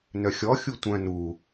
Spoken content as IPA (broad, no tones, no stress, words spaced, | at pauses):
nœxʲɔ xʲutʷœ̃ nu